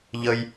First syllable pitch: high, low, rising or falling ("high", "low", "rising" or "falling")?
high